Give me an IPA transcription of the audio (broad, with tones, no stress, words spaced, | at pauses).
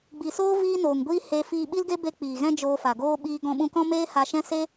ɡ͡bi˨soː˦ viː˦noː˨ŋɡʷiː˦ he˧ fiː˧ɓi˦lɡe˦ be˧ k͡piː˨ɣɛ̃˦d͡ʒoː˧fa˨ ɡoː˧ ɓiː˧ɡɔ̃˧ɓũ˧kɔ̃˦ meː˦ha˧ʃɛ̃˦ se˦